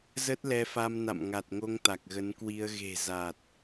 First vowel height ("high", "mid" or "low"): mid